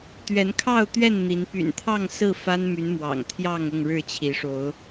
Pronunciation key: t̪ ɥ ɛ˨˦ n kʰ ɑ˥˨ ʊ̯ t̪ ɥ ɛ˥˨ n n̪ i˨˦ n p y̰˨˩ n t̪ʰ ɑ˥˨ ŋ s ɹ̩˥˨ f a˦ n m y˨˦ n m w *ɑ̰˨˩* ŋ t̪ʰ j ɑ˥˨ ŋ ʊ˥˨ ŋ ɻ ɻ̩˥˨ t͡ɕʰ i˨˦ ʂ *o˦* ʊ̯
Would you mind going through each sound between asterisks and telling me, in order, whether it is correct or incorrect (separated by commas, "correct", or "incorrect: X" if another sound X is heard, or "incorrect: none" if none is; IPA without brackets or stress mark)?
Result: correct, incorrect: o˨˦